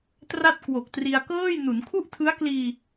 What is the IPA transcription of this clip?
t r a˥˩ t̚ k w o˨˩ k̚ t r i˧ a̯ k ɤː˥˩ j n u˩˦ n kʰ u˥˩ ʔ tʰ ɯ˦˥ a̯ k l iː˧

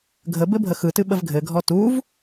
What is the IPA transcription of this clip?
ɡʱ ə b ɘ bʱ ə x ɯ t ɨ ɓ ə v ɡʱ ɘ ɡʱ ɔ t u v

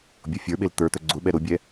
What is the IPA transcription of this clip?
bʲ o fʲ ə˞ ɓ e l t̪ ə˞ t̪ œ ɡ͡ǀ ʊ ɓ ɛ ɾ ʊ bʲ ɛ

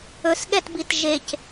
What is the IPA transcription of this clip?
ɵ s ɠ ɛ t b i t ʒ e c

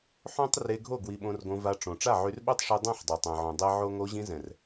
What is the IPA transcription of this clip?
ħ õ˦ tˤ r e˧ ɡʱ o˦˨ ɡ w i˧ ɓ õ˧ r ɡ õ˧ v a˧ ʈ͡ʂ õ˨ ʈ͡ʂ a˦˨ ʕ y˧ r ɓ o˦ tˤ ʂ i˧ dˤ ɛ̃˦˨ ħ dˤ ɛ˨ tˤ ɛ̃˨ ʕ õ˨ dˤ e˦ ʕ o˦ ŋ o˧ ʑ ĩ˧ z ɛ̃˨ r

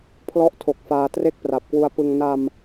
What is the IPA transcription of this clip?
pʰ l ɔ˥˩ ʔ tʰ o˨˩ k̚ f aː˧ t r e˥˩ k̚ p r a˨˩ p̚ k w u˧ a̯ p ɯ˧ ŋ n a˧ m

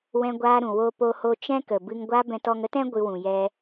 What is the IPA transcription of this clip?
w ɛ̃˧ ɡʷ aː˧ ɾ ũ˨ w o˧ p o˧ h o˧ t͡ʃ ɛ̃˦ k ə˨ b ɨ˧ ŋ ɡʷ a˦ b ɛ̃˧ t ɔ˧ ŋ ə˦ t ɛ̃˦ ɡʷ ɨ˧ w ũ˨ j ɛ˧

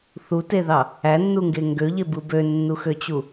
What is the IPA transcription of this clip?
θ u t e ð ɑ | æ nː u ŋ ɡ e ŋ ɡ ø ʎ e b ɯ b ø nː u x ø t͡ɕ u

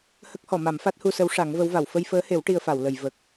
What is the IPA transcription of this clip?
h ə˦˥ k̚ h ɔ˨˩˨ m a˨˩˦ m f a˦˥ t̚ h u˧ s ə˧˥ w ʂ a˨˩˦ ŋ v ə˧˥ w v a˨˩˨ w f ə˧ j f əː˧˥ h e˨˩˦ w ʈ i˧ ə̯ f a˨˩˨ w l ə˨˩˨ j v ə˨˩ k̚

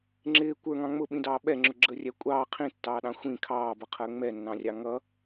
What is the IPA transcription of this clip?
ŋ͡ǁ ɪː kʷ ə˞ ŋ ɑ̃ ŋ͡m ʊ ɓ ĩ d ɑː ɓ ɛ ŋ͡ǁ ʊ ɡ͡ǁ əː rʲ æ kʷʼ ɑː qʰ ĩ tː ɑː ɗ ɑ̃ xʷ ĩ kʰ ɑː b ʌ qʰ əː ŋ͡m ɛ nː ɑ̃ rʲ ɑ ŋ ʌ

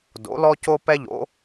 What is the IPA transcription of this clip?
d o̰˩˥ l ɔ˥ c o˥ p ɛ˥ ʎ o̰˩˥

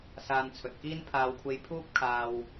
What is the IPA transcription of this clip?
s aː˧ n t͡sʰ ɵ˨ t̚ k iː˥ n pʰ aː˧ w kʷʰ e˧ j pʰ uː˥ p̚ kʰ aː˨ w

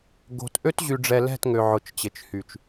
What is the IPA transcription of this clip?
ɡ o̤˨ t ʔ ø˦ t ʑ y˨ ɖ͡ʐ ɛ˨ l ɛ̤˦˨ t ŋ ø˨ ʕ ʊ˨ t͡ʃ t͡ɕ ɪ˨ t͡ʃ h y˨ t͡ʃ

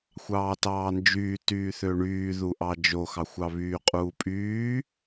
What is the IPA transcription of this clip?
xʷ ɑː t ɑː n d͡ʒ yː t yː θ ø ɳ yː ð u ʔ ɑ d͡ʒ o x ɑ xʷ ɑ β yː qʼ uː pʼ yː

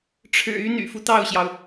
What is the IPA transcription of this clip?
ʈ͡ʂʰ ɻ̩˨˩ y˧˥ n̪ y̰˨˩ f u˦ t̪ ɑ˥˩ ʊ̯ ɕ j ɑ˩ ʊ̯

